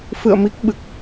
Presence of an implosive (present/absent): present